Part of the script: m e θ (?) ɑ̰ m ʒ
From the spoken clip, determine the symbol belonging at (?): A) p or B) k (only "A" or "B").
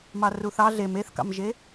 B